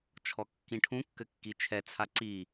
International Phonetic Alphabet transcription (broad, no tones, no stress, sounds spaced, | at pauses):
t͡ʃʰ ɔ kː ĩ ʈʰ ũ kː ɘ kː i t͡ʃʰ ɛ t͡sʰ a ǀ i